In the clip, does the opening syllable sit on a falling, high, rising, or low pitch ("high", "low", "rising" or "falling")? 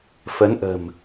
rising